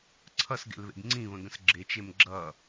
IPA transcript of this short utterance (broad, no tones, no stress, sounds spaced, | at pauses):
ǀʰ ʌ s ɡ ḛ l β ḛ ɡ ŋ͡ǀ ĩ β ə̃ ɡ ə̃ s ɡ͡ǁ e t͡ʃ e m ɡ͡ǁ ʌ